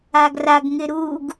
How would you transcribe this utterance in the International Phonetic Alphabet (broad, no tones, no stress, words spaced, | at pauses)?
aɡraɡ ŋɪɾuɡ